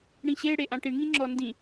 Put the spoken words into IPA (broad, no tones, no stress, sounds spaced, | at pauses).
ɽ ĩ ɕ e ɽ e ʔ ã ʈ i ɳ ŋ ĩ ŋ͡ǁ ɔ n d ĩ